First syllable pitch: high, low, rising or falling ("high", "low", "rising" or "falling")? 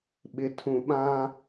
low